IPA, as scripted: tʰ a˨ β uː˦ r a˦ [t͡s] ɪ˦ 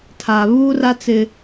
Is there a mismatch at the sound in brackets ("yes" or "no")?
no